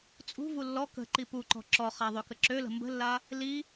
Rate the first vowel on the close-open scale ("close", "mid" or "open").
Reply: close